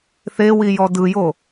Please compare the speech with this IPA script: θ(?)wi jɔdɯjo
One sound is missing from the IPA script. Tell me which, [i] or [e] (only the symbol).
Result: e